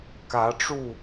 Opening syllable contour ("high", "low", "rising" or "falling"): rising